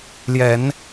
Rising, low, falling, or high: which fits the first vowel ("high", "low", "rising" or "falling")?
low